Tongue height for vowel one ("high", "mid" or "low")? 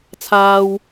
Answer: low